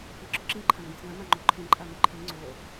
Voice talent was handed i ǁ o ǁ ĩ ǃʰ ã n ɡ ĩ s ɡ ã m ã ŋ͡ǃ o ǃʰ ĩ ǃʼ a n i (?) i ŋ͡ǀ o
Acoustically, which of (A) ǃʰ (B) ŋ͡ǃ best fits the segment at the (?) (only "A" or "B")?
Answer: A